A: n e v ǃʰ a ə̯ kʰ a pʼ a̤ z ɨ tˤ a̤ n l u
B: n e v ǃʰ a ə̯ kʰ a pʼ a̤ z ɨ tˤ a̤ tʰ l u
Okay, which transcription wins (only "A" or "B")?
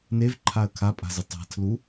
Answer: B